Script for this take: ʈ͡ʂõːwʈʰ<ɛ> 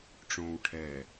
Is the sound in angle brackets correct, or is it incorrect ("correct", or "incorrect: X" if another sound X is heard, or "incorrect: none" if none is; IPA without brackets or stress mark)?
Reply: correct